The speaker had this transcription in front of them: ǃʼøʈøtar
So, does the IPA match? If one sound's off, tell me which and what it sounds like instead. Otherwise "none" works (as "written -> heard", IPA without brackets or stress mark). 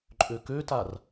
ʈ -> k